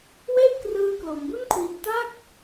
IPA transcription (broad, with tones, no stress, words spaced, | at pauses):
we˥˩ʔ krɯː˧klo˩˦mbu˥˩nkʰwi˧n ta˥˩k̚